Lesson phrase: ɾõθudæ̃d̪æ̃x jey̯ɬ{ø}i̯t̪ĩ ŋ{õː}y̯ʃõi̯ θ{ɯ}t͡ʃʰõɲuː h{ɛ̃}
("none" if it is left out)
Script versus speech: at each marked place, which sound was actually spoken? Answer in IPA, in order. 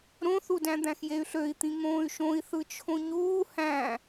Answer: ø, õː, ɯ, æ̃

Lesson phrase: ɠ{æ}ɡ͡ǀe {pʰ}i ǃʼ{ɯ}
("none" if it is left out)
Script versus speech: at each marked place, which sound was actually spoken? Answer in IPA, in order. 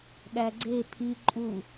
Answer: æ, pʰ, u

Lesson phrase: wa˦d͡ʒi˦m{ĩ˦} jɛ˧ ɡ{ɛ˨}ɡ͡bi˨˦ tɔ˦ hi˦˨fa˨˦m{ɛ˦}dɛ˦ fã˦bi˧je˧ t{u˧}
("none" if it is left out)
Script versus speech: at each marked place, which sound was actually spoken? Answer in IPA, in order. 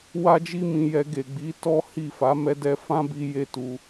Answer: ĩ˧, e˨, ɛ˦, u˧

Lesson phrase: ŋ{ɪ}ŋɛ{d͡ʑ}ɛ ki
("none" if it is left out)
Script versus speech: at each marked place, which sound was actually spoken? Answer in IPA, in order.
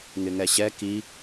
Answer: ɪ, ɕ

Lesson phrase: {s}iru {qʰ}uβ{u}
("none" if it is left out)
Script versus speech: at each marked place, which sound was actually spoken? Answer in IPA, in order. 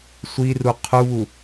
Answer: sʷ, qʰ, u

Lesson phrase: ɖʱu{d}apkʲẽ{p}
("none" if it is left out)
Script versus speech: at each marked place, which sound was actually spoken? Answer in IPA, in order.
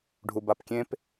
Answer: b, p

